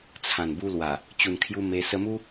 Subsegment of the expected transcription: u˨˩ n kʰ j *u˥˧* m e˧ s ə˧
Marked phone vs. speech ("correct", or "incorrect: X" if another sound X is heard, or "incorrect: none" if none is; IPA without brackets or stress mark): incorrect: u˧